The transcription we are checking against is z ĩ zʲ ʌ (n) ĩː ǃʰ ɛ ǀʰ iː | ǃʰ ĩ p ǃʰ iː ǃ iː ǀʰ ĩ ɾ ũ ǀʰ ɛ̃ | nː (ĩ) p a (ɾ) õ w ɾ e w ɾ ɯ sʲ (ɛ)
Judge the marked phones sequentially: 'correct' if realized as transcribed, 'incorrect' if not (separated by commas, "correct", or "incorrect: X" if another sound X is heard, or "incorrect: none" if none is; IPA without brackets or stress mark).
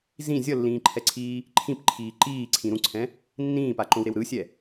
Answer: incorrect: lː, incorrect: ĩː, incorrect: ǃ, correct